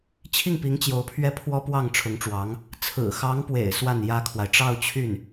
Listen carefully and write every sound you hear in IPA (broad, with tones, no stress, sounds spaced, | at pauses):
t͡ɕʰ i˥˩ ŋ p i˧˥ ŋ t͡ɕ j o˧˥ ʊ̯ pʰ ɥ ɛ˥˩ pʰ w ɔ˥ p w ɑ˥˩ ŋ ʈ͡ʂʰ ʊ˧˥ ŋ ʈ͡ʂ w ɑ˧˥ ŋ | t͡sʰ ɹ̩˨˩ x ɑ˧˥ ŋ p w ḛ˨˩ ɪ̯ s w a˥˩ n j ä˥ kʰ w a˨ ɪ̯ ʈ͡ʂ ɑ˥˧ ʊ̯ t͡ɕʰ y˥˩ n